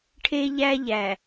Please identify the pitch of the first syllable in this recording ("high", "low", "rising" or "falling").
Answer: high